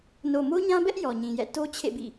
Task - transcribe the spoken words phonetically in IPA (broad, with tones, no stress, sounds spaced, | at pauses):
n o˨ m o˦ ɲ ã˦ b ɛ˦ ʔ j ɔ˨ ɲ ĩ˨ j ɛ̰˦˨ t o˦ t͡ɕʰ ḛ˦˨ b ḭ˦˨